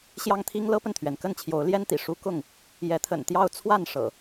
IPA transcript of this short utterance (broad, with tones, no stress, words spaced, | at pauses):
ɕjɑ˦ŋt̪ʰi˦ŋ lɤ˦pə˨nt̪ʰɥɛ˩n kə˥˨nt͡ɕʰjo˨˦ʊ̯ ljɛ˦nt̪ḭ˨˩ ʂu˦ kʊ˥˨ŋ | jɛ˨˦t̪ʰə̰˨˩nt̪jɑ˥˨ʊ̯ t͡sʰwa˥˨n ʂɤ̰˨˩